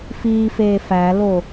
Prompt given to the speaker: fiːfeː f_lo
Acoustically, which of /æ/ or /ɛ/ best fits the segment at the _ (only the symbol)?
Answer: æ